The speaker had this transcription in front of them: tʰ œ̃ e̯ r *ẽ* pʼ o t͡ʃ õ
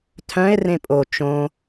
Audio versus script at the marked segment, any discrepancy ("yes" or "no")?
no